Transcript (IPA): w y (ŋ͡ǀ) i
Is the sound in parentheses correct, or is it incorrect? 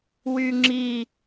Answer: incorrect